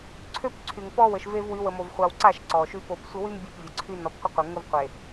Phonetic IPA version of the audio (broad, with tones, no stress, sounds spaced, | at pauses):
ǀʰ ø˦ p ǀʰ y˨ ŋ p ɔ˦ w ə˨ ʃ v e˦ v w y˨˦ w ə˨ m o˨ v χʷ a˨ w ǀ a˦˨ ʃ ǀ ɔ˨ ʃ y˦ p o˨ p sʷ ə˦ w y˦ m bʲ e˦˨ p vʲ ə˨ ǀʰ y˦ n ɔ˨ p qʷ ə˦ qʷ e˨ ŋ ə˦ v qʷ e˨